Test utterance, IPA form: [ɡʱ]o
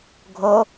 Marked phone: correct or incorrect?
correct